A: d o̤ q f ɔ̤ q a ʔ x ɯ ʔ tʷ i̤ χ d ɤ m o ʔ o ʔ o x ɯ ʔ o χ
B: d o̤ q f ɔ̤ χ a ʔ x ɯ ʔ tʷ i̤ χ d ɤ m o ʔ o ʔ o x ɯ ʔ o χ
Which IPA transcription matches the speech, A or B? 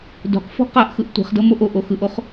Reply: A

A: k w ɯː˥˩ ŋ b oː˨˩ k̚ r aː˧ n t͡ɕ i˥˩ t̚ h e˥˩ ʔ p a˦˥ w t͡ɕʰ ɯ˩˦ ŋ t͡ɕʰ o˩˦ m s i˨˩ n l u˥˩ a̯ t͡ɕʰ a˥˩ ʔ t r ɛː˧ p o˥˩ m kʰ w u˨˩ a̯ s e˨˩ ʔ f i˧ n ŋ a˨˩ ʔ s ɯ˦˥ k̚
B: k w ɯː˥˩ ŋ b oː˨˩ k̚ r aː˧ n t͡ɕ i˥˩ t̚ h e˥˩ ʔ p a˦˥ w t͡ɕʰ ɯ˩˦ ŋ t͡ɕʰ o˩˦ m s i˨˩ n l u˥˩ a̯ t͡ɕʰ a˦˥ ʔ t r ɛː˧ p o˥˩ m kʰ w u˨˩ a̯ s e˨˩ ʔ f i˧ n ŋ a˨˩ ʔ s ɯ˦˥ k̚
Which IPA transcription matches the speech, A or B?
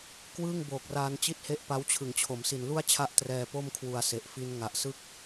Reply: B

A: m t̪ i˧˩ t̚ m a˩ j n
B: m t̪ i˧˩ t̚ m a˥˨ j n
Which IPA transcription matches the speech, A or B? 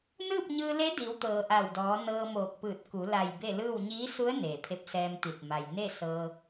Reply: A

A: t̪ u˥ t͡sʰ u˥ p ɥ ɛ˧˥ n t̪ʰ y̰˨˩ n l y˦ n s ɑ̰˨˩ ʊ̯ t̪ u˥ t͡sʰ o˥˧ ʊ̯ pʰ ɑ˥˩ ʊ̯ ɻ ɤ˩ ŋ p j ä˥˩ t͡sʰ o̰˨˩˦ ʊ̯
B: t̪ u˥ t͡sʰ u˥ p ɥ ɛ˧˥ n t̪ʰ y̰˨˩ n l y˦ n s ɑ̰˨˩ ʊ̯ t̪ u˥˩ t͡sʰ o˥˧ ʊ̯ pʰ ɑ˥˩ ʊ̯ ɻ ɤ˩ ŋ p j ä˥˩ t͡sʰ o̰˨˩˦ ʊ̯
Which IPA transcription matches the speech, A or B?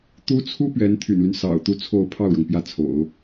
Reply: A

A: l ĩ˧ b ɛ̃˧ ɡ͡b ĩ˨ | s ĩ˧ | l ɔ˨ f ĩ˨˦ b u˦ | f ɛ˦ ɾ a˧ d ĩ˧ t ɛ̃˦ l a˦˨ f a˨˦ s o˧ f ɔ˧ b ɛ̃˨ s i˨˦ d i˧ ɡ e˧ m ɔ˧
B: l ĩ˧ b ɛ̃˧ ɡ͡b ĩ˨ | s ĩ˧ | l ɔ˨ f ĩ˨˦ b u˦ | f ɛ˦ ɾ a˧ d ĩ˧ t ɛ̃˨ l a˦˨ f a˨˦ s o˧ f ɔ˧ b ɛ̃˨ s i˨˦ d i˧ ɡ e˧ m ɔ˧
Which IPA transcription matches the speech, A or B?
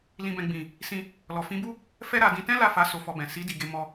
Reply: A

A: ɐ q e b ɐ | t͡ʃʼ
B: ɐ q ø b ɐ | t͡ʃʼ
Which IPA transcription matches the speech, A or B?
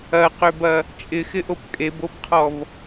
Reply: B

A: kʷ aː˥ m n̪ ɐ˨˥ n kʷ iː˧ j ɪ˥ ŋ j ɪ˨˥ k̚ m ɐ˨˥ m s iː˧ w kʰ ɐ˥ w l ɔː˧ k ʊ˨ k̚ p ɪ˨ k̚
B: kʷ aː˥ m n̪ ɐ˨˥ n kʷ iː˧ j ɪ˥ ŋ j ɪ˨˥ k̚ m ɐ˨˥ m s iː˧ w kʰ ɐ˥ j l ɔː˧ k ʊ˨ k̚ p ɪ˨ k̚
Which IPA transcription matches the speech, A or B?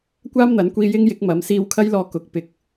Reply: B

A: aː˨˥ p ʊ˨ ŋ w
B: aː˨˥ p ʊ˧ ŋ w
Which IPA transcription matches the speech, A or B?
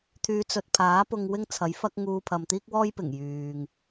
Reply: B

